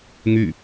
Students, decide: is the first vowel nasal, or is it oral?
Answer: oral